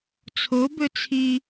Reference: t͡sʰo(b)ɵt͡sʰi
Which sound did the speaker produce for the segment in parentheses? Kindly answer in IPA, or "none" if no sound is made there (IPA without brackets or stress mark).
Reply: b